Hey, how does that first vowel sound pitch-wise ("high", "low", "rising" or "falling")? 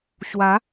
rising